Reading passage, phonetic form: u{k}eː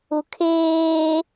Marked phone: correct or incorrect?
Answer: incorrect